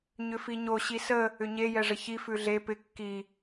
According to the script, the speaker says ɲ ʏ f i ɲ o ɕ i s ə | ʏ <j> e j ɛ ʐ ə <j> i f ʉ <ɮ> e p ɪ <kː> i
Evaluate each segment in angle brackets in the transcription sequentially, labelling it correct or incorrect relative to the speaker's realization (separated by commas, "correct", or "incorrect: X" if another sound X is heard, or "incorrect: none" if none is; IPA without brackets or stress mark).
incorrect: ɲ, incorrect: ç, correct, correct